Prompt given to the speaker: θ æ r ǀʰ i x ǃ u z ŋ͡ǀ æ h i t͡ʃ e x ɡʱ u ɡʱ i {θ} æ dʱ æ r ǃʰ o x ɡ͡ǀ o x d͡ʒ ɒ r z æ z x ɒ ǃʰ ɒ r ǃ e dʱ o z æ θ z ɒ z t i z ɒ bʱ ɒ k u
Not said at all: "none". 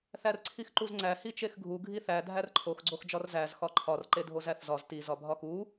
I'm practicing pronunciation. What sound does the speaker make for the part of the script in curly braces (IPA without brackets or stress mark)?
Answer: θ